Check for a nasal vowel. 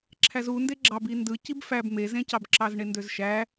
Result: present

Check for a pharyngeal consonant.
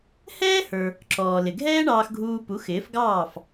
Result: absent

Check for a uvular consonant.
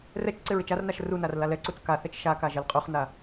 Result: present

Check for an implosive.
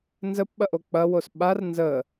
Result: present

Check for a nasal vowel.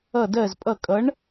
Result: absent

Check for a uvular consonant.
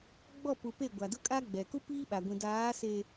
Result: absent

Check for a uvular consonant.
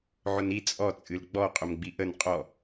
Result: present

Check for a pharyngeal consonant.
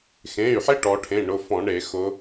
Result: present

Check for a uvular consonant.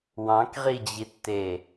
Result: present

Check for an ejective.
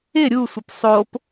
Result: absent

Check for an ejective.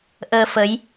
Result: absent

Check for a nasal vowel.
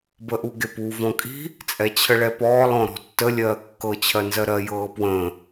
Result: present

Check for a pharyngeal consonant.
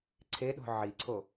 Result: present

